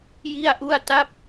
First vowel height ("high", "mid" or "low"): high